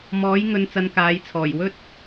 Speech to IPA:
m ɔː˨˥ j ŋ ɵ˨ n t͡s ɐ˨ n k aː˨˧ j t͡sʰ ɔː˨˩ j w ɵ˥ t̚

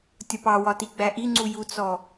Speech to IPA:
tʲ ɒ p ɑ w ɒ t i ɡ͡b æ ʔ i ŋ͡ǀ u j u t͡s ɔ

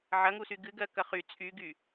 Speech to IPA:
ʕ ɐ ŋ u s y ɡ ɨ ɡ ɜ k ɐ χ y t͡sʼ y ɡ y

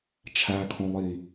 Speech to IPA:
t͡ʃʰ æ kʰ õ lˠ i

